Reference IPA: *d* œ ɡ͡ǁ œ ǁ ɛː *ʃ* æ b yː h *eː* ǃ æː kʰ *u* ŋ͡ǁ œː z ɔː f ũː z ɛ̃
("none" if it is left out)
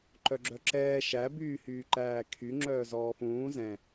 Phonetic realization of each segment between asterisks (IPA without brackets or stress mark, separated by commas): ǃ, ʃ, yː, y